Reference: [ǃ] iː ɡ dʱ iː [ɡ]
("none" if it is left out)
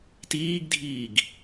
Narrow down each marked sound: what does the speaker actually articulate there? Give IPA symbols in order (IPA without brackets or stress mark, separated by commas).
t, ɡ